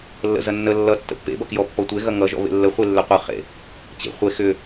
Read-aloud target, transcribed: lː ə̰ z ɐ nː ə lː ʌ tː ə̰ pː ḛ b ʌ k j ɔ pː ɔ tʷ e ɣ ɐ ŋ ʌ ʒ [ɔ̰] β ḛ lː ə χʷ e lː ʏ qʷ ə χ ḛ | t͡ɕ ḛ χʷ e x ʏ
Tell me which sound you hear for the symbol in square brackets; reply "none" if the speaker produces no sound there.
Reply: ɔ̰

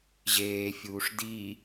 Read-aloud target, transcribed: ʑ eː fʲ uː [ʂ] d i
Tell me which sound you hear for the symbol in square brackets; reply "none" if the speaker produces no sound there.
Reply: ʂ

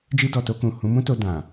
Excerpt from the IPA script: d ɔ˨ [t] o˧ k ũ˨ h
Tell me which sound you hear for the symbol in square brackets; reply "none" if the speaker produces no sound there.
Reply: t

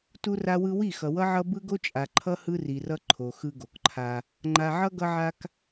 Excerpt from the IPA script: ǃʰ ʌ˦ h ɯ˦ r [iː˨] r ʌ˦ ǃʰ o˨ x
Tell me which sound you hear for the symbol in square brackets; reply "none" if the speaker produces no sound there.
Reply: i˨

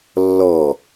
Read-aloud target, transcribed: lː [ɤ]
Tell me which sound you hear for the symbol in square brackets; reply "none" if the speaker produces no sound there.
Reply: ɔ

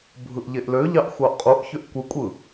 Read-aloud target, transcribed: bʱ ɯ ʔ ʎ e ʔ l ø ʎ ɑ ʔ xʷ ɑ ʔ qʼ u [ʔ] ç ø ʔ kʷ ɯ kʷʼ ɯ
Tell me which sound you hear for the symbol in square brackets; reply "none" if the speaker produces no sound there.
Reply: ʔ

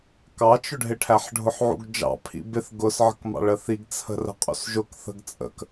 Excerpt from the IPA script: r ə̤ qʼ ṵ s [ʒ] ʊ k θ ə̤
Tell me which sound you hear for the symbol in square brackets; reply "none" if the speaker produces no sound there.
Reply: ʒ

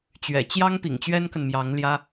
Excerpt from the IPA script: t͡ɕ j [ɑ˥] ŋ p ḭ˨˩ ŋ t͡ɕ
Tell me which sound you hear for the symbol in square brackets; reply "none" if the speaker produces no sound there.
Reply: ɑ˥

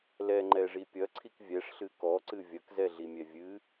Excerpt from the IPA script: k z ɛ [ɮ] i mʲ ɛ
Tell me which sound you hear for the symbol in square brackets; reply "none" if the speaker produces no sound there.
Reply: ɮ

